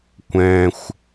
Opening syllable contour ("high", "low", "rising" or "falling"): high